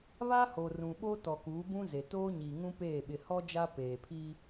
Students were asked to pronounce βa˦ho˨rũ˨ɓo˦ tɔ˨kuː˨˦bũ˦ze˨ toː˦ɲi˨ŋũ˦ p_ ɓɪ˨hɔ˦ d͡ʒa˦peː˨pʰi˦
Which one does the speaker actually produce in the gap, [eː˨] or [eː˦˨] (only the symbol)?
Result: eː˦˨